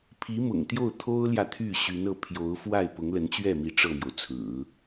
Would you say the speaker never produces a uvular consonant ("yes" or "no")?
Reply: yes